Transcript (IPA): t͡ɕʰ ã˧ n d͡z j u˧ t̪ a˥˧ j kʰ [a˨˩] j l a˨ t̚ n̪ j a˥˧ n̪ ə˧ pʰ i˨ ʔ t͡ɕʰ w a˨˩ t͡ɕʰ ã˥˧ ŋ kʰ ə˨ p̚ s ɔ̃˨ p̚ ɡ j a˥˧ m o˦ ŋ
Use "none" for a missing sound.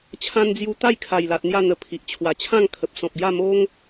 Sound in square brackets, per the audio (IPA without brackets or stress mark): a˨˩